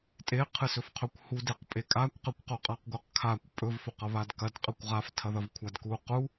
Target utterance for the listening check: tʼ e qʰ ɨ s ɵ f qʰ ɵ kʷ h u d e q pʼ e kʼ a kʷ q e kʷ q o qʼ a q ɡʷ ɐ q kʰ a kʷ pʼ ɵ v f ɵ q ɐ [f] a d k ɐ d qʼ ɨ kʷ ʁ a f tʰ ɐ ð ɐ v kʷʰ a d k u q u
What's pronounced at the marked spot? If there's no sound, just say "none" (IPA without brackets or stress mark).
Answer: β